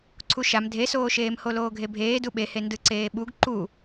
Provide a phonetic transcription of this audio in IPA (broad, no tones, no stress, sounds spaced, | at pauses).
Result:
ǀʰ u ʃ a m dʱ e s oː ʃ eː m h o l oː ɡʱ e bʱ eː d u ɓ e h e n d ɯ ǀ eː ɓ u ɡ ǃ u